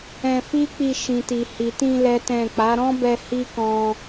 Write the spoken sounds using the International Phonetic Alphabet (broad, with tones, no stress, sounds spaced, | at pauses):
ɛ̃˧ f i˦ k͡p i˧ ʃ ĩ˨ t i˨ h i˨ t ĩ˧ l ɛ˦ t ɛ̃˦˨ k͡p a˨˦ ɾ ɔ̃˦ b ɛ˧ h i˦ k ɔ̃˧